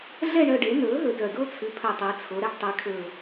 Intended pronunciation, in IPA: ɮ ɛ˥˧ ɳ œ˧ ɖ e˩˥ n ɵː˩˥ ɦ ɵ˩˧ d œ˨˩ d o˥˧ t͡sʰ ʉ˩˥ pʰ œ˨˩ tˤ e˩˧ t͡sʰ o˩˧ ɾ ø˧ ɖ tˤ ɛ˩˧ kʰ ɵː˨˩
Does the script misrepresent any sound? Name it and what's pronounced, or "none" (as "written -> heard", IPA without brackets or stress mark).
ø˧ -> ɛ˧